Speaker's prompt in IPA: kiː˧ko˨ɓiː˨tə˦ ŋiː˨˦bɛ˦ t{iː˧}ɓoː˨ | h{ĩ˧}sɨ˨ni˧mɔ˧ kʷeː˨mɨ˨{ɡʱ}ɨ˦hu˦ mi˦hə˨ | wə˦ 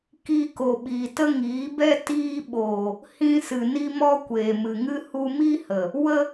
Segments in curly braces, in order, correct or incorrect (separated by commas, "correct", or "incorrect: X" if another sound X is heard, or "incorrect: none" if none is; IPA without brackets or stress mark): correct, correct, incorrect: ŋ